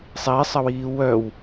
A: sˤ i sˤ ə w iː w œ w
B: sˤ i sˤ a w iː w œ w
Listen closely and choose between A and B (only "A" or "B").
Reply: A